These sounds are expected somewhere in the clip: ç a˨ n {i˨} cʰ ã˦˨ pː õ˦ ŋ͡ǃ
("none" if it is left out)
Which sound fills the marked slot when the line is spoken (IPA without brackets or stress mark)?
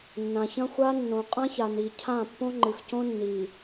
i˨